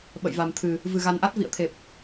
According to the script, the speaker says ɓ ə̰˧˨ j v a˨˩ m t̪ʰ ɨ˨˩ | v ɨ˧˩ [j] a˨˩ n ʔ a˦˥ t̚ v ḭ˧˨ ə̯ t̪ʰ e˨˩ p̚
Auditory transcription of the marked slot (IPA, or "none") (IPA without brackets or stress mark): ɣ